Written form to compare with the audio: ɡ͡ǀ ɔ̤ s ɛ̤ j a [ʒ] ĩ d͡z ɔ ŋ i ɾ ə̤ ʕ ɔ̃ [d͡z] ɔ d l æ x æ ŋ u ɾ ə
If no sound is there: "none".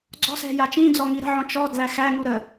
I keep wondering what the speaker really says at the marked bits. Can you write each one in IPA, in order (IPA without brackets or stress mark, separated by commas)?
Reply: t͡ʃ, t͡ʃ